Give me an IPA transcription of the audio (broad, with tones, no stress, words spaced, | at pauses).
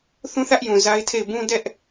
θũ˦θä˦ʔjũ˨ za˦ɪ̯tʰe˦˨ɪ̯ bũ˦ dɛ˦ʔ